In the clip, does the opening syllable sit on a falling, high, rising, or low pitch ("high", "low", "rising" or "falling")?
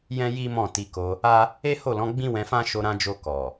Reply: high